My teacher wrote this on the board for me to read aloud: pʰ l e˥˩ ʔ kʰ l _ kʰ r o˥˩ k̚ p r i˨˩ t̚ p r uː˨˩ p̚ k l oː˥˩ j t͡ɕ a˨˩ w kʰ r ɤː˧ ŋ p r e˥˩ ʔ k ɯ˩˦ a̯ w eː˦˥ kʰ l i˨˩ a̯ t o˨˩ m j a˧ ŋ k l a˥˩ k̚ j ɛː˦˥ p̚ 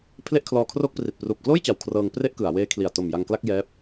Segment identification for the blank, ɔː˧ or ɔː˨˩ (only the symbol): ɔː˧